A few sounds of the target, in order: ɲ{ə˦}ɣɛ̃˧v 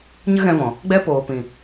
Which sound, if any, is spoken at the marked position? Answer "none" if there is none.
ə˦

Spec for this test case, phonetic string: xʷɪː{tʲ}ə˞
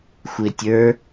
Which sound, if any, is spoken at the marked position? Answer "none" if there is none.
tʲ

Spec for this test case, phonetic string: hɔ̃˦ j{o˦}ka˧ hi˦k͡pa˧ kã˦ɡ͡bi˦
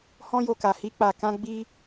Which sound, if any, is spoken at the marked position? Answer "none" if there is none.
o˧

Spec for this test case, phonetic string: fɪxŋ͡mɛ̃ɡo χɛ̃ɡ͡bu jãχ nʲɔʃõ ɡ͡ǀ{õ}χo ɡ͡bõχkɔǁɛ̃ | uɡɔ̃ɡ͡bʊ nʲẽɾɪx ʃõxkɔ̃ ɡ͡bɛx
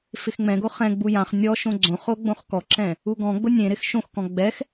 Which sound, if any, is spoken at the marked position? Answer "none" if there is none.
õ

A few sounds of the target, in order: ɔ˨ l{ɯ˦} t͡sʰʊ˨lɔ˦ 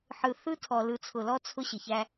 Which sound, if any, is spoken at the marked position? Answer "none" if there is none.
ɯ˨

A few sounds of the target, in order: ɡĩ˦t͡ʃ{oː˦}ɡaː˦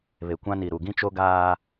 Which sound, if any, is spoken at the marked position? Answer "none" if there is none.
o˦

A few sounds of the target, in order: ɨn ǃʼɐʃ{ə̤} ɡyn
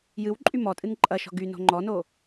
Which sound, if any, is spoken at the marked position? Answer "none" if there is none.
ɔ̤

